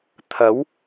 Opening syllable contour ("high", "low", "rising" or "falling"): rising